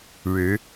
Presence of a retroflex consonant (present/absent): present